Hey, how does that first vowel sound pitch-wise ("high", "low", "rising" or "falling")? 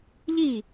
falling